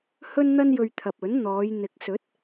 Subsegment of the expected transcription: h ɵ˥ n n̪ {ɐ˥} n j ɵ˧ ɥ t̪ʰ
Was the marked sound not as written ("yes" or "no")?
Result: no